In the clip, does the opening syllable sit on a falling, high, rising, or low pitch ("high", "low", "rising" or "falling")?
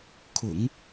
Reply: low